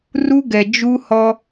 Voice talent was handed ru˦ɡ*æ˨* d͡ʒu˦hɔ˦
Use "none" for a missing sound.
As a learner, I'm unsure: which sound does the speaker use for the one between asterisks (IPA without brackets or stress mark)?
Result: ɛ˨